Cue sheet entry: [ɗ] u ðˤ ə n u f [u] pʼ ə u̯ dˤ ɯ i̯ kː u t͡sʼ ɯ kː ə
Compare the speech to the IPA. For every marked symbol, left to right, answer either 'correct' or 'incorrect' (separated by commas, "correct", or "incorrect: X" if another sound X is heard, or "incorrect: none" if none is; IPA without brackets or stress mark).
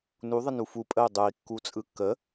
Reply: incorrect: n, correct